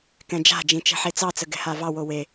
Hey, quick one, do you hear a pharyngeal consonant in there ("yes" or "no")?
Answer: yes